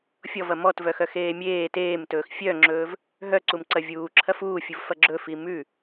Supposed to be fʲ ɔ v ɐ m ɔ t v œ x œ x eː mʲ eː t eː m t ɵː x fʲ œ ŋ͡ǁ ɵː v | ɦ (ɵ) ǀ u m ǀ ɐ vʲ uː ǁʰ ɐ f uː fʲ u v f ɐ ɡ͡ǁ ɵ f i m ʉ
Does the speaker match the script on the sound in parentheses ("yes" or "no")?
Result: no